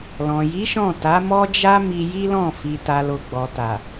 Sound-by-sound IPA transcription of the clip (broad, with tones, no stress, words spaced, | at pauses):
lɔ̃˨ji˨˦ʃɔ̃˦˨ ta˨˦mɔ˦d͡ʒa˦ mi˧ji˦lɔ̃˦˨ fi˨ta˨lo˨ ɡ͡bɔ˨ta˨